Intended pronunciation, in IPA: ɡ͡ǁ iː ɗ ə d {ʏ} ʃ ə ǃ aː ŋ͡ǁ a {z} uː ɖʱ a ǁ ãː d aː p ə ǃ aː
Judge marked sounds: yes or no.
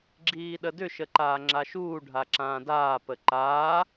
yes, no

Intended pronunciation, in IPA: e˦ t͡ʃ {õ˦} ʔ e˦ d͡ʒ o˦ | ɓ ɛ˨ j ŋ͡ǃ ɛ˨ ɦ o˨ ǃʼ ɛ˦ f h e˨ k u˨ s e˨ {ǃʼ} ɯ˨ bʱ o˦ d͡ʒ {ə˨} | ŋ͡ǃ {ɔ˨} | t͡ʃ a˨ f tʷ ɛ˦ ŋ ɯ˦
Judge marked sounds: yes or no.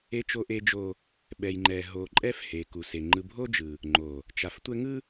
no, no, no, no

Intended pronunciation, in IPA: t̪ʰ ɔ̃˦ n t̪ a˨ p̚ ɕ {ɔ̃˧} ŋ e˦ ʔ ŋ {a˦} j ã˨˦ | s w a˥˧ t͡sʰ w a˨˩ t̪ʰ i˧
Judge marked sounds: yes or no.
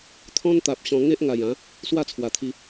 yes, no

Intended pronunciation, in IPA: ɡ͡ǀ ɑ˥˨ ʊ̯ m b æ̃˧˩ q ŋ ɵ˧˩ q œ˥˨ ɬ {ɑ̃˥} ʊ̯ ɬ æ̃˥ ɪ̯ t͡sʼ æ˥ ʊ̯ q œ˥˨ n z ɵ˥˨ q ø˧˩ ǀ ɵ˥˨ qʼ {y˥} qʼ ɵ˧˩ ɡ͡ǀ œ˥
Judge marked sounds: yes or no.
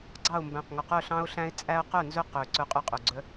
yes, yes

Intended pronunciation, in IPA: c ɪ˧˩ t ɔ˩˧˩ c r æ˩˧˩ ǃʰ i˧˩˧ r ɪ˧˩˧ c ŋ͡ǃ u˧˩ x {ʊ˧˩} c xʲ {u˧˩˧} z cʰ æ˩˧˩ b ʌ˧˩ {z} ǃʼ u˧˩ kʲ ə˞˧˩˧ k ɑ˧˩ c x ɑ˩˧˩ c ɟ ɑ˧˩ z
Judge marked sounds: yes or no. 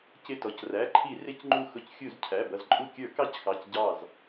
yes, yes, yes

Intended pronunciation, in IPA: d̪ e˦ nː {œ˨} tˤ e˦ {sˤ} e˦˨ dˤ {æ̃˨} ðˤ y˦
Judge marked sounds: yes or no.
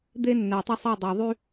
no, yes, no

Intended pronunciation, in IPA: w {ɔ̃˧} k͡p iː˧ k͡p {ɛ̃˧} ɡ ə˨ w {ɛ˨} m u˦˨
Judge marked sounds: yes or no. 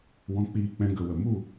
yes, yes, no

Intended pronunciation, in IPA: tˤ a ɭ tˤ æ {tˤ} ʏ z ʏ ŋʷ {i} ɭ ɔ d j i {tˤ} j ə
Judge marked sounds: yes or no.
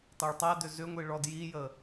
no, yes, no

